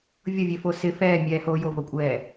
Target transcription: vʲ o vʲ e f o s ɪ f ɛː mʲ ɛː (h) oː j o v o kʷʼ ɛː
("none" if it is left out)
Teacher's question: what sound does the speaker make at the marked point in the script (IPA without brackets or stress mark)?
h